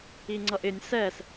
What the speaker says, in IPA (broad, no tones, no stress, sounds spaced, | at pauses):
i ŋ͡ǀ ʌ ʔ ɪ nʲ s ɛ s